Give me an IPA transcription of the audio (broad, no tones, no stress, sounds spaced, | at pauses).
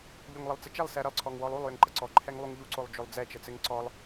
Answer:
ʎ o ŋ lˠ ɘ lˠ t͡s ɘ t͡ʃ ɛ lˠ s ɛ ɾ ə lˠ ǀʰ ɔ ŋ w ɔ lˠ u lˠ j ə ŋ ǃ ə ǀ ɔ ǃʰ ɛ ŋ lˠ u ŋ ʎ u ǀ o lˠ d͡ʒ o lˠ d͡z ɛ t͡ʃ ə t͡s ɘ ŋ ǀ ɔ lˠ